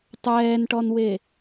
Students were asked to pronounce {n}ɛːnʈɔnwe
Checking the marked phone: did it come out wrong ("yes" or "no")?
yes